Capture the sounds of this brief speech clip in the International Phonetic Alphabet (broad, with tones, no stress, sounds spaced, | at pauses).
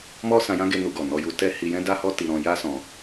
m ɔ˦ s ã˧ j ã˦ ɡ e˧ n u˧ ɡ ɔ˨ n ɔ˧ j u˧ t ɛ˦ h i˧ j ɛ̃˦ d a˦ h ɔ˦ t i˧ ɾ ɔ̃˧ j a˦ s ɔ̃˧